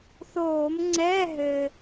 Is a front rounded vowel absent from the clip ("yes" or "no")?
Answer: yes